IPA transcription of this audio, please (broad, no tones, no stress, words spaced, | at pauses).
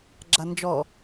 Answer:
ɡ͡ǁand͡ʒɔ